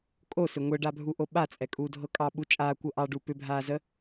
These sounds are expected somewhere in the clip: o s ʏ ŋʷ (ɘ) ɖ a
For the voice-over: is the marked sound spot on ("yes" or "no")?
yes